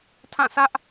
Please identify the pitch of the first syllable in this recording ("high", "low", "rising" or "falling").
falling